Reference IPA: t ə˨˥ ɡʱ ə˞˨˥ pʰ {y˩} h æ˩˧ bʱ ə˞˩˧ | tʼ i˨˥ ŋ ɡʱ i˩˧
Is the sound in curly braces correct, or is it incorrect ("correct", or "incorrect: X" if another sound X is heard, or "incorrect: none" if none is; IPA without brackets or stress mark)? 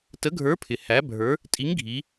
incorrect: ɪ˩